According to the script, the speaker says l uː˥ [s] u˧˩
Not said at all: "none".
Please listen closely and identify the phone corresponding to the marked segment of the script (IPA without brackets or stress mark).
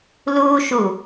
ʃ